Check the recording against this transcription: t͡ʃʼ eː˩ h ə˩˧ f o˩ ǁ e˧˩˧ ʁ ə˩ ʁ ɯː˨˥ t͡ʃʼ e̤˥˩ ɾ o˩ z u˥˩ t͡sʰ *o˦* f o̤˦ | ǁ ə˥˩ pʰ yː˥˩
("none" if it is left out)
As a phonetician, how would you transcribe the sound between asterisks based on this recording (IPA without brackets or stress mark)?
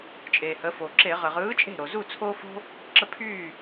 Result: o˦